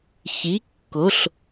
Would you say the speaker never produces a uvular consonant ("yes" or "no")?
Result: yes